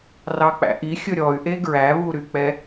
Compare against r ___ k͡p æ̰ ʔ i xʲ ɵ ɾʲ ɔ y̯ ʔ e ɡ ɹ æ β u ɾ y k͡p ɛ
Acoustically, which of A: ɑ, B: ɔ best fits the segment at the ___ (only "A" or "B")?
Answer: A